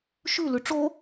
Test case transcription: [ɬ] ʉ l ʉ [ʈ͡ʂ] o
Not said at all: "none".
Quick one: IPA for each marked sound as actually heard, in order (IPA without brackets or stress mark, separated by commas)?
ʃ, ʈ͡ʂ